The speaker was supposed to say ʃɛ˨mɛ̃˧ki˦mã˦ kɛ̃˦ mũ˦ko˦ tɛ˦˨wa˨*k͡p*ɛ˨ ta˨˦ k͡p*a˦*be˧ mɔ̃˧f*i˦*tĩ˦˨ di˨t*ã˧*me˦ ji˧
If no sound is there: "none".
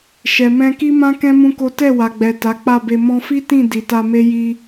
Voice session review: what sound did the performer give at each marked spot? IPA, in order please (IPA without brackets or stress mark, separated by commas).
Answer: ɡ͡b, a˦˨, i˦, a˧